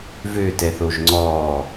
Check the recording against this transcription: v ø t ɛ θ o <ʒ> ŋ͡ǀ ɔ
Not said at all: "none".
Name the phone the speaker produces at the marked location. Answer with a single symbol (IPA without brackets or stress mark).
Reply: ʒ